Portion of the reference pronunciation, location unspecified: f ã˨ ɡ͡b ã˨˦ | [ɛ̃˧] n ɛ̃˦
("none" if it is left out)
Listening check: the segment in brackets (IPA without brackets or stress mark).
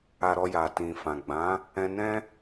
ɛ̃˧